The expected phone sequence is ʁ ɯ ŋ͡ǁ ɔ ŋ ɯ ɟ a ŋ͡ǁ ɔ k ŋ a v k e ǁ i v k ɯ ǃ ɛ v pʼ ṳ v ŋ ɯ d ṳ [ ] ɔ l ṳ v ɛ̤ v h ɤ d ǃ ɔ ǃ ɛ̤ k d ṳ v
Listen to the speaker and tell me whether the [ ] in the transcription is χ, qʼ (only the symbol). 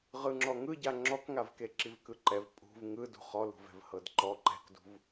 χ